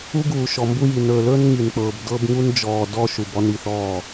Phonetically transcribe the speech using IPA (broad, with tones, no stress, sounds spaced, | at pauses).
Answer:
u˦ ɡ uː˨ ʃ ɔ˨ m b u˦ j i˨ n ɵː˨ l ɵː˦ n ŋ i˨ n k͡p ɤː˨ b d ɤ˦ b ŋ u˦ n d͡ʒ ɔː˨ d ɔ˦ ʃ u˨ b ɔ˦ n i˦˨ θ ɔː˦˨